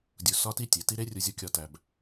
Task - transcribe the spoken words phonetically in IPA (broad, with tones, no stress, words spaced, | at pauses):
dʲu˨sɒ˧ti˧ tʲe˨ti˦ ɾe˦rʲu˧zʲo˧ kʲɒ˧tæ˧b